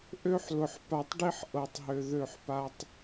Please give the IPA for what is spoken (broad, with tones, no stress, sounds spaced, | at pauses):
ʔ ø˦ ħ l ʊ˨ ħ p a˨ tˤ ɖ i˦ ħ ʔ ɤ˨ tˤ ɦ ø˨ ð ø˦˨ ħ p a˦ tˤ